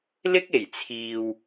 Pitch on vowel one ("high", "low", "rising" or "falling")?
high